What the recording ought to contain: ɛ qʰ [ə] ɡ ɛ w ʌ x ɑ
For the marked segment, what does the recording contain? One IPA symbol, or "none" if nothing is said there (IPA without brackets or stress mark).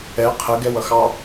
ə